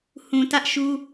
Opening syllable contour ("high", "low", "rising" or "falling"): low